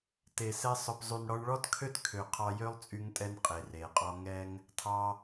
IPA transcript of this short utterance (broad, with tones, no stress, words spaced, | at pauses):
te˨sɛ˧ sˤœ˨pzˤy˨n ɽɔ˧ɳɭɔ˦tkʰø˦t kʰø˨ qʰɑ˧jø˦lˠt͡sʼy˧ŋtʼɛ˧n qʼe˨re˨qʼɔ˦ ŋɛ˦ŋ | tʰɑ˧